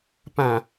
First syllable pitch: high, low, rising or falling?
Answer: low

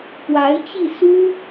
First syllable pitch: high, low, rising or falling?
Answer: rising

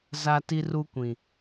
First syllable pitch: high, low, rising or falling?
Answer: high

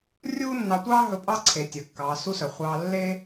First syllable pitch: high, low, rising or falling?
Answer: high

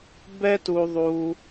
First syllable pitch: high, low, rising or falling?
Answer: high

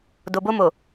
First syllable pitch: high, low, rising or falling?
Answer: low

